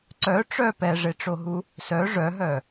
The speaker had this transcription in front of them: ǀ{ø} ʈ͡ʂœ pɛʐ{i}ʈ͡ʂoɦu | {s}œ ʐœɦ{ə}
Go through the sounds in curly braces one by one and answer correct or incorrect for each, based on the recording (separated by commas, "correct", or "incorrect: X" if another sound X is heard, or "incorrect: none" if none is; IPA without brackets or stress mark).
incorrect: œ, incorrect: e, correct, incorrect: œ